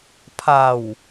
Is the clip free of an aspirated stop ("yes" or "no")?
no